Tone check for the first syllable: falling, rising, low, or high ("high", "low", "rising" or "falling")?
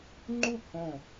falling